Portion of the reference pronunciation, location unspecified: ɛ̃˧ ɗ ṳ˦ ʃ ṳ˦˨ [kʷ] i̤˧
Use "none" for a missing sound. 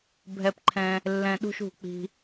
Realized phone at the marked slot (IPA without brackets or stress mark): k͡p